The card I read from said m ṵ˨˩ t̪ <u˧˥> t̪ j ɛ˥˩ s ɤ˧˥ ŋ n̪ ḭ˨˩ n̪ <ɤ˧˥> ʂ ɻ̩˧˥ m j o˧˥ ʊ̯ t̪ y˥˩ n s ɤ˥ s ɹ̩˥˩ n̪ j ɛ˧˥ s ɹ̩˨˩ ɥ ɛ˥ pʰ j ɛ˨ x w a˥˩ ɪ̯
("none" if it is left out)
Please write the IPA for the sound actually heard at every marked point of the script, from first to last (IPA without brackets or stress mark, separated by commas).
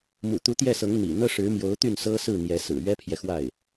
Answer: u˧˥, ɤ˥